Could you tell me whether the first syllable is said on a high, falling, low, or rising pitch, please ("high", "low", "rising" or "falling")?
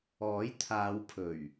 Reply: rising